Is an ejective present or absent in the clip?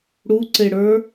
absent